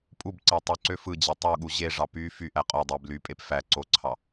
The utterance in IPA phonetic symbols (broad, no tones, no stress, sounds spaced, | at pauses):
pʼ u b ǀ æ tˤ y ǀ ø f ɯ d͡ʑ e tˤ u ɠ u ʑ e ʐ ɑ p y f y ʔ æ qʼ o dˤ e b l y pʼ e p f æ ǀ o ǀʰ ɑ